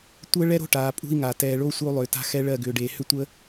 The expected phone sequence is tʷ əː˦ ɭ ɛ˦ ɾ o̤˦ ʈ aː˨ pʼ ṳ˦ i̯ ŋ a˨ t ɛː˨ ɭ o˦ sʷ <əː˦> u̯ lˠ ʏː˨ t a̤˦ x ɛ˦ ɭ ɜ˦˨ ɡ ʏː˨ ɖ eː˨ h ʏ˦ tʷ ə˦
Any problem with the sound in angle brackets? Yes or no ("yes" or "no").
yes